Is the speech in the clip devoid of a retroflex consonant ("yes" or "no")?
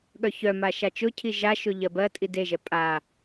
yes